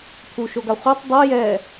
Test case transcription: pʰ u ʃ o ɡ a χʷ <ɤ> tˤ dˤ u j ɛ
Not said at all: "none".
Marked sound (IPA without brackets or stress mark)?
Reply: ɤ